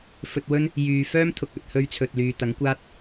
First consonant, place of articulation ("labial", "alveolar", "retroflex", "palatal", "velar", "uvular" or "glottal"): labial